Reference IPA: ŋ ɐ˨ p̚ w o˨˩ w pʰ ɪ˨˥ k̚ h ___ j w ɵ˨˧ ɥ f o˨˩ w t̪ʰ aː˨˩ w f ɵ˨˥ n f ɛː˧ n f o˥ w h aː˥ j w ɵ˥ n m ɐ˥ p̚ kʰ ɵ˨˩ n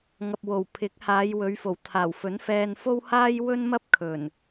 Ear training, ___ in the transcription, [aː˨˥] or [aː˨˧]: aː˨˧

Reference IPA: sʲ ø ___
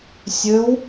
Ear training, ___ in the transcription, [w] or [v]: w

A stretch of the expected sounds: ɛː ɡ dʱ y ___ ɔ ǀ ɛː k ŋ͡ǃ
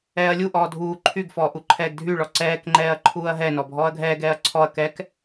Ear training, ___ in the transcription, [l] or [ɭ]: ɭ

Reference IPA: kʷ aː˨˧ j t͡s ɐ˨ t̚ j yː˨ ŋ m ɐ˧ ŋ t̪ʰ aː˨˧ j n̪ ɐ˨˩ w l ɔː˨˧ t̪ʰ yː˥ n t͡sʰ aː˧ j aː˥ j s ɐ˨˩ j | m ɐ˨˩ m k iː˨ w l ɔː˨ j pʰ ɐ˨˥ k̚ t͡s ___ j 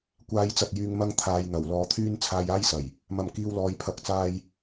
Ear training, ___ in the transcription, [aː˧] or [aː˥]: aː˧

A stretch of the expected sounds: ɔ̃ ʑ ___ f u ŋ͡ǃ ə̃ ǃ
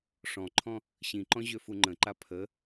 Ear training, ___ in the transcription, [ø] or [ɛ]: ø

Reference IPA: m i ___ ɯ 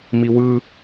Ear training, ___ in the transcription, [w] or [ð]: w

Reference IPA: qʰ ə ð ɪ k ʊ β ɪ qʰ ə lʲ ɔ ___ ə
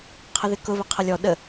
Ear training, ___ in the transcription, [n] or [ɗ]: ɗ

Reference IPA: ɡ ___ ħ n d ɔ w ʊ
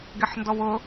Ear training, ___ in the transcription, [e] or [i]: e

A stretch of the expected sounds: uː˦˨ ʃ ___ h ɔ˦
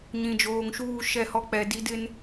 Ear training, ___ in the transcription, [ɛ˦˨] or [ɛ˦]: ɛ˦˨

